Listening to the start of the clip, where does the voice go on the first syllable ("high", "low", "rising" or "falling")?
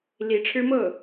rising